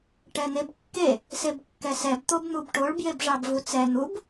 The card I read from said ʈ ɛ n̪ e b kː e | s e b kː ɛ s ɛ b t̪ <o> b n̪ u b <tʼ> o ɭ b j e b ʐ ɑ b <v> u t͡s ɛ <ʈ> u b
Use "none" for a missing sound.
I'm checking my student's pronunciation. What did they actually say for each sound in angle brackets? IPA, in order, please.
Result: o, ʈ, v, n̪

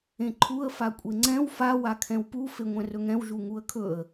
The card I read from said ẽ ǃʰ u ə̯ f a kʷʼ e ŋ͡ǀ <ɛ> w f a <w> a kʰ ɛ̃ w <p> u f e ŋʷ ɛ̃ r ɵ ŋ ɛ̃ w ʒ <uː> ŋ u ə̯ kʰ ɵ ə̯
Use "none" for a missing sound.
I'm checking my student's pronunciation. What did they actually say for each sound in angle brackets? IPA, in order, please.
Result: ɛ̃, w, p, u

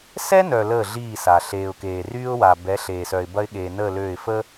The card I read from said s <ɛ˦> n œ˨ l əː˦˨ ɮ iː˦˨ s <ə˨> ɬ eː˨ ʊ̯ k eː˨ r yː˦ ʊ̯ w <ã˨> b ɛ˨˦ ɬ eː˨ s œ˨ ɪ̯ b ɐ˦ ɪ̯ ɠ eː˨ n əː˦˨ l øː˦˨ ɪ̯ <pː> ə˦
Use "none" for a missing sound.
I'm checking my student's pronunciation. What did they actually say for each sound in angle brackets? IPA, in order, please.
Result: ɛ˦, a˨, a˨, f

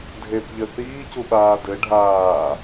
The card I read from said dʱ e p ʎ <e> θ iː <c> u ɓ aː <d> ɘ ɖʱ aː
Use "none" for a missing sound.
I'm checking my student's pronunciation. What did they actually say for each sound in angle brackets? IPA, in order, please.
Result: ɘ, c, d

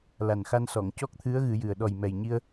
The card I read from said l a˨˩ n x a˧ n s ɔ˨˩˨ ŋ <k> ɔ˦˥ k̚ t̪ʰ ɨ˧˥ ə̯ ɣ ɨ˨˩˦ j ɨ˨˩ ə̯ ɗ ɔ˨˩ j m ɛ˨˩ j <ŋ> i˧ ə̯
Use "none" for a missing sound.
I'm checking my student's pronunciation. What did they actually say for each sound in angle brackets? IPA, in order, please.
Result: c, ɲ

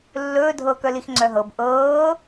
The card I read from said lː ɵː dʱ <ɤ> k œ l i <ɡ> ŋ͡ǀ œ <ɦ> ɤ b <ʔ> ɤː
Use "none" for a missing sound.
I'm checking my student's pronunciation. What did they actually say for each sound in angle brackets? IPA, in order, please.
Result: ɤ, x, ɦ, ʔ

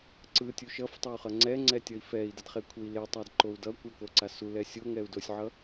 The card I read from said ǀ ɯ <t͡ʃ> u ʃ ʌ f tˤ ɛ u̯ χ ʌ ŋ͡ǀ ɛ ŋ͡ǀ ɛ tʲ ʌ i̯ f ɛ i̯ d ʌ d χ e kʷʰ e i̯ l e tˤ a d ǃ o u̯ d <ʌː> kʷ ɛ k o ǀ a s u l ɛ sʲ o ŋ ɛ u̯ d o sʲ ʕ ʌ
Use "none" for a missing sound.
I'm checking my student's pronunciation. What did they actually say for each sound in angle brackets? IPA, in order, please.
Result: tʲ, ʌ

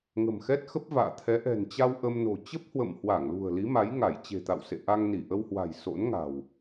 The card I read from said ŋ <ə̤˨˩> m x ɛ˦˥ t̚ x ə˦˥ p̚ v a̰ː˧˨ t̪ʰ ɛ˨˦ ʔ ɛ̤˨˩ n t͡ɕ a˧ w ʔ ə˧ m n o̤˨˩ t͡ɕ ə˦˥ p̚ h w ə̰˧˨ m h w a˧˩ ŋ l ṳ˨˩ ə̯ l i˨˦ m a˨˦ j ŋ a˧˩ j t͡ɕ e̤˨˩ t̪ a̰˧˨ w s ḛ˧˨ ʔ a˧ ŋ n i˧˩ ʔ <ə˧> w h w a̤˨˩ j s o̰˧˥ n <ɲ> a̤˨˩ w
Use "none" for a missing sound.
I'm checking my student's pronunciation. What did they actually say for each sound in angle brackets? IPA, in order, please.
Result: ə̤˨˩, ə˧, ŋ

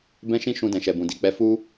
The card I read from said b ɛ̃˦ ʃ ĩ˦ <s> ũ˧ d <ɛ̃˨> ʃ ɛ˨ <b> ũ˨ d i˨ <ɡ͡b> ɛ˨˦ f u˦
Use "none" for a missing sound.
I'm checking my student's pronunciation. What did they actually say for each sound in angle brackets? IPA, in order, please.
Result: ʃ, ɛ̃˨, b, k͡p

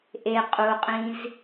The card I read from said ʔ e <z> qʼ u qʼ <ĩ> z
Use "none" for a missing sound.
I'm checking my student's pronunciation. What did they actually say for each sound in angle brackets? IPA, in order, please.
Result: none, ĩ

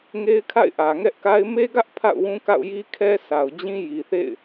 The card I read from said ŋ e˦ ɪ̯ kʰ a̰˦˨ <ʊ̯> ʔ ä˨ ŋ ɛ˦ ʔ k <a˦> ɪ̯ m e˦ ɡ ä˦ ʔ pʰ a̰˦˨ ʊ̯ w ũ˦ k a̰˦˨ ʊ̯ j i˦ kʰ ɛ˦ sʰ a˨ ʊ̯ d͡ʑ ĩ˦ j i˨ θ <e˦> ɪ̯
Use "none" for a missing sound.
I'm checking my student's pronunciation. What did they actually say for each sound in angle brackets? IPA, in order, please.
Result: ɪ̯, a˦, ḛ˦˨

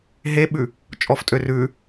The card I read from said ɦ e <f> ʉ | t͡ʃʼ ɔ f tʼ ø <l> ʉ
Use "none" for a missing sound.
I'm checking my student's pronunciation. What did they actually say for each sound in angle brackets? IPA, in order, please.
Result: ɓ, r

